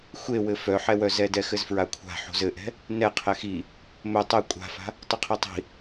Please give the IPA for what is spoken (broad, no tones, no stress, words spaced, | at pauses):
xʷewɘ fœħɛwœzɛ dɛxɘzfɹakʷʰa̤ ħo̤zɘʔɛ̤ | nɛ qʰɛxi | mɵ tˤɛ kʷʼa̤fa̤ | tˤɵqʰitˤi̤